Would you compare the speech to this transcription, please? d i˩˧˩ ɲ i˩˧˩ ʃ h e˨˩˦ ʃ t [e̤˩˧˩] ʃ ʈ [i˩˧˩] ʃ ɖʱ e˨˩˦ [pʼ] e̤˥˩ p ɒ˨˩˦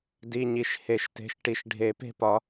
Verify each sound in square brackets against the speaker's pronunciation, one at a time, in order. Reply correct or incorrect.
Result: correct, correct, incorrect: p

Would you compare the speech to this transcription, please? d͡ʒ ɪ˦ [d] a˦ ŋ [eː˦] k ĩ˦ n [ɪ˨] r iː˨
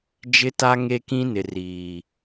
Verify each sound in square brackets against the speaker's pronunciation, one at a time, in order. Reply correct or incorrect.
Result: incorrect: t, incorrect: e˦, correct

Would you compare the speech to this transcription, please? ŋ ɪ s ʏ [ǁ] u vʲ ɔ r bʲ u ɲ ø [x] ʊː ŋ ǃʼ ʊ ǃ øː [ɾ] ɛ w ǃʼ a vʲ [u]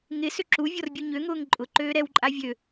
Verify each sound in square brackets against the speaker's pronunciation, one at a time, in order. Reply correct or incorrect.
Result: correct, incorrect: ŋ, correct, incorrect: ø

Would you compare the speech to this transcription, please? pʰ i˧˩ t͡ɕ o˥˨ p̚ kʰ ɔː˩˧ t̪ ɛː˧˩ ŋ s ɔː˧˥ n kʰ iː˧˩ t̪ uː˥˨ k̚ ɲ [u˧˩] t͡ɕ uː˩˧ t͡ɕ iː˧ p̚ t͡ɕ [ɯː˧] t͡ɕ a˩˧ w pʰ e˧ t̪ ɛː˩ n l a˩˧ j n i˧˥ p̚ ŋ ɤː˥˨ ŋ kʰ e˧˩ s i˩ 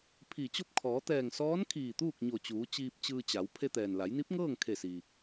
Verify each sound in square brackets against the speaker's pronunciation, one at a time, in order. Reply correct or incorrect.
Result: incorrect: o˧˩, correct

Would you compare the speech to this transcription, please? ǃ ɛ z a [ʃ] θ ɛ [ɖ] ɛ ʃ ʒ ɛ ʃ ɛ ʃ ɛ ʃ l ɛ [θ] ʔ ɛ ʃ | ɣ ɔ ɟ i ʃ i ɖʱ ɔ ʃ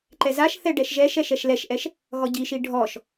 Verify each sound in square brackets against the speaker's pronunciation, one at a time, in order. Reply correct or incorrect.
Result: correct, correct, incorrect: ʃ

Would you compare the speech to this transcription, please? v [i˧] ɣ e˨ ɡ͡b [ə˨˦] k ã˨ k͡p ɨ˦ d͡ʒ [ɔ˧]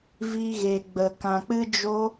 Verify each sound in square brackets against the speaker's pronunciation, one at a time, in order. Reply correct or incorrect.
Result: correct, incorrect: ə˨, incorrect: o˧

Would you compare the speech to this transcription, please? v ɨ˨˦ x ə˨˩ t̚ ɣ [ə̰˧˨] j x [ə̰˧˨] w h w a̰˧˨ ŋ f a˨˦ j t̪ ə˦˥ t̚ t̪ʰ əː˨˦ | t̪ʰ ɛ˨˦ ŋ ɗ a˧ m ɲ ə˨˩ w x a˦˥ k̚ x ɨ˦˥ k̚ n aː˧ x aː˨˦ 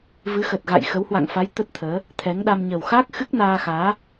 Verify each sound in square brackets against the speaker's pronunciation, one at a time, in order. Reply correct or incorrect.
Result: incorrect: a̰˧˨, incorrect: ə˨˦

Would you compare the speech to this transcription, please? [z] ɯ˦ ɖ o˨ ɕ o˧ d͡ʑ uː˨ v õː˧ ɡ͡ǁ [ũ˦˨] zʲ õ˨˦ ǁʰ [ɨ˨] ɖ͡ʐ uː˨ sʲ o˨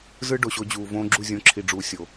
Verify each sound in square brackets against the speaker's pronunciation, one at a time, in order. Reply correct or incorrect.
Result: correct, incorrect: u˦˨, incorrect: i˨

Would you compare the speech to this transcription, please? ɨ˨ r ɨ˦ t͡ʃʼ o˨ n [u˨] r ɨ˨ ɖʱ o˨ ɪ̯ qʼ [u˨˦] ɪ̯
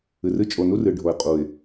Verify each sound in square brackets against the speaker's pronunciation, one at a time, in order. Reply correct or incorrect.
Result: incorrect: u˦, incorrect: u˨

